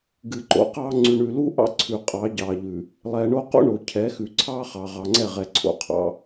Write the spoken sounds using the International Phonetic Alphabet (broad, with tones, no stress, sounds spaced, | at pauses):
ɡ ɨ˨ ǃ o̰˨˦ q ɑ˦ ŋ͡ǀ ʉ˨ ɳ ʉ˨ l u˦ ʔ ɑ̰˦ ǀʰ ʉ˨ qʼ ɑ˨˦ ɟ ɑ˨ ʎ ʉ˨ | lˠ ɛ˨ ɳ o˦ q o̰˦ ɳ o˨ cʰ ɛ˨˦ x ʉ˨ ǀʰ ɑ˦ χ ɑ˨ ʁ ɑ˨ ŋ͡ǀ ɛ˦˨ ʁ ɛ˨ ǀʰ o̰˨ qʰ ɑ̰˦